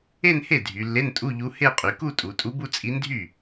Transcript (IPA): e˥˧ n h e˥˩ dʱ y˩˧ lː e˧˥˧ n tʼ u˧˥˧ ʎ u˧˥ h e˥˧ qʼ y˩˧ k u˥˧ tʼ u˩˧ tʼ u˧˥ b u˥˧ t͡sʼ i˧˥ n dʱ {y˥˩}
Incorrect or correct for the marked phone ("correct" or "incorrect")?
correct